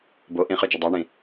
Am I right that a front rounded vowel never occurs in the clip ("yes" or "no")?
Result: no